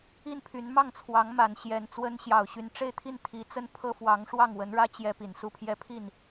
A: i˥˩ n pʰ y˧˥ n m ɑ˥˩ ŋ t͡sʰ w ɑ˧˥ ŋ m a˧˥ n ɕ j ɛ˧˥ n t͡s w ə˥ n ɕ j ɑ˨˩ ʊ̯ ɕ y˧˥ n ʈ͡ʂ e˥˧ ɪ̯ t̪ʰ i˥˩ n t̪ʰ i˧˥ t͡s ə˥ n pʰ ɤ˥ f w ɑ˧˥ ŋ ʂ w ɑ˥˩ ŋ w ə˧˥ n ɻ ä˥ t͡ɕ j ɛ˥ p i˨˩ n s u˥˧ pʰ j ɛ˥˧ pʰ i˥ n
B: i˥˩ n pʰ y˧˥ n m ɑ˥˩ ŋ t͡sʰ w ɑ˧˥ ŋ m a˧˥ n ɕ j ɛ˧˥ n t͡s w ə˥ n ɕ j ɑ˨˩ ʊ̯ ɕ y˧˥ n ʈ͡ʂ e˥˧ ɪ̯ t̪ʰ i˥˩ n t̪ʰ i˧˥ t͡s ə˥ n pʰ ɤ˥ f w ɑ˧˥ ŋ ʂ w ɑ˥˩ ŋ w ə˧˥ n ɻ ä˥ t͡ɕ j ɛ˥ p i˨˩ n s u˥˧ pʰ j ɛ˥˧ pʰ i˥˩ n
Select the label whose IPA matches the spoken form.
B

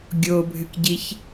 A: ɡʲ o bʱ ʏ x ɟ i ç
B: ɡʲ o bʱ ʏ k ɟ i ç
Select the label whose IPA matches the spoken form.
B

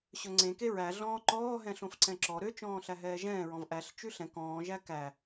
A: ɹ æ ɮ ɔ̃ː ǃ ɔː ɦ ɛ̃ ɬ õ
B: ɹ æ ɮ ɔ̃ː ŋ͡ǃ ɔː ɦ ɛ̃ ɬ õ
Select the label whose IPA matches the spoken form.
A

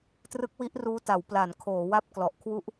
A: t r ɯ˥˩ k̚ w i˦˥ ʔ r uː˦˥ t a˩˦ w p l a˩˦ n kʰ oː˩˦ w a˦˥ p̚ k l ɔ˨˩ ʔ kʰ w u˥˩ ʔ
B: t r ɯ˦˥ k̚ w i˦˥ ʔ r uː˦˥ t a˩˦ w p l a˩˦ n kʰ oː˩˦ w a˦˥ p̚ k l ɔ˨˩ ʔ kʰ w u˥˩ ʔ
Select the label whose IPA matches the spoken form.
B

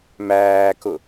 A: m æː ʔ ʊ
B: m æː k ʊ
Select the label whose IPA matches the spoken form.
B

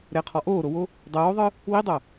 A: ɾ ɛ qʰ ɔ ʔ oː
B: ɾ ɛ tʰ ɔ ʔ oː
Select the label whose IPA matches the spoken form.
A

